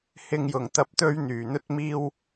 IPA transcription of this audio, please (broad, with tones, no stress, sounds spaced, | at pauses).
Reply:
h ɪ˨ ŋ j ʊ˨˩ ŋ t̪ ɐ˧ p̚ t̪ ɵ˧ ɥ n̪ yː˨˩ n̪ ɵ˧ t̚ m iː˧ w